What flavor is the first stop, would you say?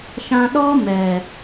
implosive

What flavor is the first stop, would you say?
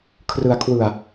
aspirated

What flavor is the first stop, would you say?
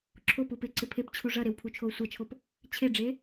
click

